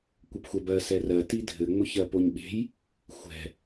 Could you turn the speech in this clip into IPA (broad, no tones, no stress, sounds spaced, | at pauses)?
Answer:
kʷ ɘ p xʷ ɛ b ɜ s ɛ r ɜ t i dʱ ɘ ŋ͡m ʊ ç ɜ p o ɲ ɓ e̤ j | xʷ ɛ̤